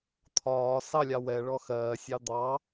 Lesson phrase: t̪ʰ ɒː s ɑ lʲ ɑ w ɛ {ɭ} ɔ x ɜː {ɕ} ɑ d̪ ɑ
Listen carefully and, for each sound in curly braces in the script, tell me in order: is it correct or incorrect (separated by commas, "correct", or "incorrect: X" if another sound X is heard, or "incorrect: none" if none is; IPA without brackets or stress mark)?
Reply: correct, incorrect: sʲ